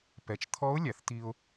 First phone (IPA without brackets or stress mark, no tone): p